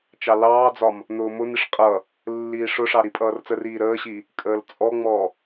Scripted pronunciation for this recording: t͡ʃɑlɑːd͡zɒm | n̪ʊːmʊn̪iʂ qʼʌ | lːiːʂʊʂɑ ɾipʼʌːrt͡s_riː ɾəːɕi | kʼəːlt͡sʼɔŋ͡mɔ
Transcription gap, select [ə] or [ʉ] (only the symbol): ə